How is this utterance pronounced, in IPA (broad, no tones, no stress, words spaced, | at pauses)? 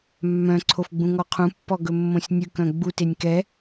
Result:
mːœ̃ ǀʰofɡ͡bũŋɔqʰũ pːɔɡɵmːõsʲnʲʉk œ̃ɡ͡but enʲkɛ